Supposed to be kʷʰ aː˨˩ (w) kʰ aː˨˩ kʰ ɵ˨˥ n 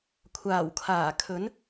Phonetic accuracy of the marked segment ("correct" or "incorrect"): correct